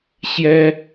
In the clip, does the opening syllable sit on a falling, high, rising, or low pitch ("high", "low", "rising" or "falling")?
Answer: high